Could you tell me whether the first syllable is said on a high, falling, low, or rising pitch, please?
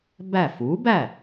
falling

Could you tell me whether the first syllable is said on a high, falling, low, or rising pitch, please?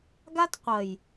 high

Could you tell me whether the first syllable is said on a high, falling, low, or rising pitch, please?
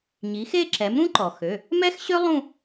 rising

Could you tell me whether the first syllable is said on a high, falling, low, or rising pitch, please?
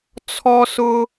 high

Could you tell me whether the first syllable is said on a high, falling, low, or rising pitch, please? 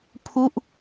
falling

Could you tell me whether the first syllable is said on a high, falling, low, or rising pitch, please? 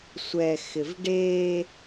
low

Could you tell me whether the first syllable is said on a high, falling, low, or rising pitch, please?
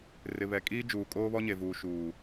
low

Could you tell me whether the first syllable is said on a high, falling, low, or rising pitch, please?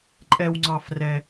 high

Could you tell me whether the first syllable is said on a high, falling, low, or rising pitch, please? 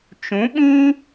rising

